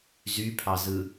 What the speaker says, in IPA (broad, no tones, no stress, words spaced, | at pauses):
zypʰɑzɯ